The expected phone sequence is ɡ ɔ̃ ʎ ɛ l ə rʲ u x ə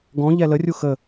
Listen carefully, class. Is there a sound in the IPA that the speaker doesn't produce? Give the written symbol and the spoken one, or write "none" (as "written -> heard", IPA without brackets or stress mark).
none